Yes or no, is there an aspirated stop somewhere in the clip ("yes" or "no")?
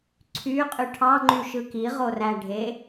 yes